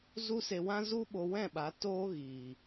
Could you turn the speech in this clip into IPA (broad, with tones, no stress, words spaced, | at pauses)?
zu˦se˧wã˦ zu˦ɓo˧wɛ̃˦˨ɓa˨˦ toː˦ɣiː˨